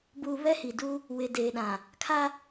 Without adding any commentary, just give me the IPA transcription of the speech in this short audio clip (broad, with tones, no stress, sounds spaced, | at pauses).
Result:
b uː˨ β ɛ˦ h i˨ d u˦ | w ɪ˨ d eː˨ ɗ ã˨ | kʰ a˦